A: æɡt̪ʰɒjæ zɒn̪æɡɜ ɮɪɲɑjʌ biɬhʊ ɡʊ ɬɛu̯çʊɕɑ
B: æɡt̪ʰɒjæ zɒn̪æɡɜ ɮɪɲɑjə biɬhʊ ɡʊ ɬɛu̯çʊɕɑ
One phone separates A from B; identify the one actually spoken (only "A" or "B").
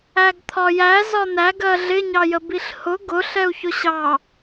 B